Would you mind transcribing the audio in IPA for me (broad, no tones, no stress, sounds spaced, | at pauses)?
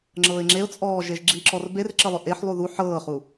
ŋ͡ǁ ɤː ɪ̯ ŋ͡ǁ e ʊ̯ t͡sʼ ɔː ʒ e ʒ ɡ͡ǁ i ǁ ɔ r b e r ǁ ə lˠ ø ʔ e ħ lˠ u ð u ħ ɤː χ u